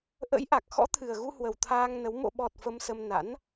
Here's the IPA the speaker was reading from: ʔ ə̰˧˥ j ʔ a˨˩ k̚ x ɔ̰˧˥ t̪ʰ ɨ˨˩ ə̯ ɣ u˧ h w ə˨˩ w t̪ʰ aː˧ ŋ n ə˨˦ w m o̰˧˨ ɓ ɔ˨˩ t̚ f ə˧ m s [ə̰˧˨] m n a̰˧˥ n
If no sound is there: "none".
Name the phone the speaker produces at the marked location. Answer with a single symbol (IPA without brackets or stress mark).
ə˧